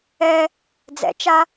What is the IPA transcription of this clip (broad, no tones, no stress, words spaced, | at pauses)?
ɛ | d͡zɛ̰t͡ʃa